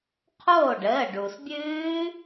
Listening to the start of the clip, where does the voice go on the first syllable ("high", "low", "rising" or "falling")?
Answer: falling